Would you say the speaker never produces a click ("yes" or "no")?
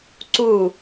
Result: no